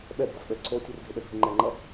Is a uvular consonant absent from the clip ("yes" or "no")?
yes